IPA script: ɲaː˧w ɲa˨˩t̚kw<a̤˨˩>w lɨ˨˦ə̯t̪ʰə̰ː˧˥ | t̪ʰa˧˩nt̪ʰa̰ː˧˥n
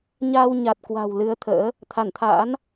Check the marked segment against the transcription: correct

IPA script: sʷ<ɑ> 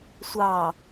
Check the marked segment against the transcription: correct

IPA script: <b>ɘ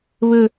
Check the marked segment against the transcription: incorrect: β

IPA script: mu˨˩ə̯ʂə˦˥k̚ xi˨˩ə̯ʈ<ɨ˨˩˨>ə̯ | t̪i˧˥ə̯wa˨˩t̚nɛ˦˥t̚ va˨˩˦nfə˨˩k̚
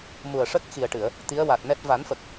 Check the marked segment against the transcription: correct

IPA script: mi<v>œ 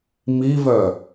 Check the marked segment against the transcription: correct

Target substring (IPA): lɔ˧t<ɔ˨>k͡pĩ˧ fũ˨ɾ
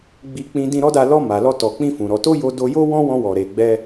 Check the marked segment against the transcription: correct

